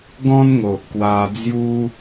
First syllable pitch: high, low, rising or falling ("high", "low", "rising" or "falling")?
high